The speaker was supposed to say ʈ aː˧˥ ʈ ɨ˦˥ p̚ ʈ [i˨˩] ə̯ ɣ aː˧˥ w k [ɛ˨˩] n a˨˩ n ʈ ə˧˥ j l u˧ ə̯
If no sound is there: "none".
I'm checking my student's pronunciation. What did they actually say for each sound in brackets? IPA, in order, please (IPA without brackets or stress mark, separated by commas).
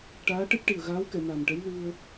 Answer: i˨˩, ɛ˨˩˨